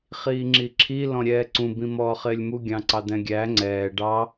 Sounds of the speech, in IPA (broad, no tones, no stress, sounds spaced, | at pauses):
χ iː ŋ͡ǁ i ǁʰ i l ɔ̃ ɾʲ ɛː ǀ ũ b ĩ m ɔː χ ɪː lʲ m u ɡʲ ɑ̃ ǀ ɑ d̪ ɛ̃ ɡʲ æ ŋ͡ǀ ɛː ɖ ɑ